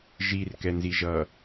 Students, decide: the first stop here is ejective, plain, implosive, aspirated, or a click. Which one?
plain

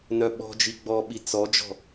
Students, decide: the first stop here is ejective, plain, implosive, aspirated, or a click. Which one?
implosive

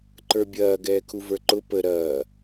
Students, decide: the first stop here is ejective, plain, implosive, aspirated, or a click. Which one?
click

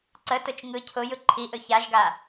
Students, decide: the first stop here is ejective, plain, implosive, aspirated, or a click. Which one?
click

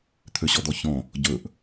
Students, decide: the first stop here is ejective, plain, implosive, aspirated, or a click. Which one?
aspirated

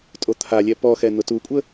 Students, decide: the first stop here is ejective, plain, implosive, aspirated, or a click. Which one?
ejective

